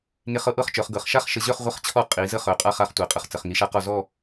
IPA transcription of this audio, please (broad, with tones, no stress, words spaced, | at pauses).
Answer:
ŋe˧χɤ˧ʔɤ˥˧χt͡ʃœ˩˧χ ɡɤ˩˧χʃa˥χʃə˧ʑœ˥˧χ ʁʷə˥˧χt͡ɕʰɔ˥˧ qʼi˩˧ zə˥χœ˩˧qʼa˥˧χ a˧χtʷɛ˩˧qʼə˧χ t͡sə˩˧χŋi˧ʃa˥qɔ˥˧ zɔ˥˧